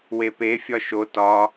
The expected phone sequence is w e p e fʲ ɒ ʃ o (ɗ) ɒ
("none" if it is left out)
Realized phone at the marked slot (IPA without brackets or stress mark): t